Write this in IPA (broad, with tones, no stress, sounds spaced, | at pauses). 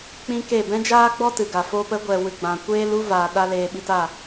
k͡p ĩ˦ k e˦˨ b ɛ̃˦ d͡ʒ aː˦ ɡ͡b ɔ˦ t ɨ˨ ɡ a˨ f oː˧ p ə˨˦ ɡʷ ɛ˨ w ɨ˨ ɡ͡b ã˨ kʷ eː˦ l u˦ v aː˨ ɗ a˦ l eː˧ ɓ i˧ t a˦˨